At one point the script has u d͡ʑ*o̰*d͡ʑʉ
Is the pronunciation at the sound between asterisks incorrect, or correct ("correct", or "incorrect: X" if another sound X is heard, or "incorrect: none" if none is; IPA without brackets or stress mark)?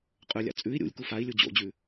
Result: correct